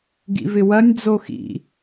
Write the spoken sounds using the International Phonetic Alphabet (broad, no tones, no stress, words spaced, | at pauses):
ɡḭvɪwɐnʲ d͡zoxḭ